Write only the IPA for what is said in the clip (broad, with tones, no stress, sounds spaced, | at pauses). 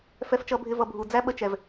f ɛ˦ f t͡ʃ ʌ˦ bʱ ɪ˦ v ʌ˧ bʱ u˨ d͡z æ˦ ɓ ə˧ t͡ʃ ɛ˨ v